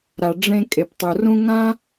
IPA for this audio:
ɾ a˩ ɖ͡ʐ ẽ˧ kʼ e˩ p tˤ u˩ r ũ˥ ŋ ã˥

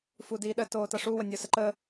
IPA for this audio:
f u d iː ɗ ə t oː t ʌ ʂ u w ə nʲ o s ə ǃ ə

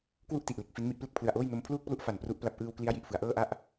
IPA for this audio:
k w u˥˩ ʔ t i˨˩ ʔ l e˨˩ k̚ f i˦˥ n m i˥˩ ʔ p l e˥˩ k̚ pʰ l ɯ˨˩ a̯ ʔ oː˥˩ j n o˧ m pʰ l uː˥˩ k̚ p l u˥˩ ʔ f a˨˩ n p r u˦˥ ʔ p l a˦˥ p̚ ʔ ɯː˧ w k l i˦˥ a̯ j i˨˩ ʔ f ɯ˩˦ a̯ ʔ ɤː˥˩ ʔ a˥˩ ʔ

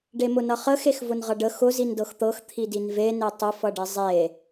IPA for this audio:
ɖ e m ʊ n ʌ χ ə x e x v ʊ n ʁ ʌ ɖ ə x ʊ z i n d ɤ x t̪ ɤ x t̪ʰ i d i n v e n e tˤ ʊ f ʌ ɖ i zˤ e

